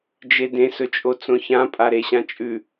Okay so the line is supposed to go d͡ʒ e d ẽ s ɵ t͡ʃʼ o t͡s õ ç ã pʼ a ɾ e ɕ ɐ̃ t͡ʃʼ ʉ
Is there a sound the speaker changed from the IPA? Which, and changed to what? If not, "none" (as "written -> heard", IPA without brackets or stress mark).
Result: ɐ̃ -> ã